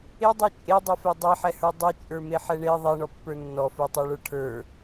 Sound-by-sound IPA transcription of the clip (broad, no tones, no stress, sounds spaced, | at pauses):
e dˤ e t͡ʃʼ e dˤ ɛ f ɛ dˤ e ħ ɛ h ə˞ dˤ e t͡ʃʼ ə˞ m e ħ ɛ ɳ e ðˤ ɛ ɳ ɔ pː ə˞ nː ɔ f ə˞ tˤ ə˞ ɭ ə˞ ʈʰ ə˞